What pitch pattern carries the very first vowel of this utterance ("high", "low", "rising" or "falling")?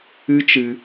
high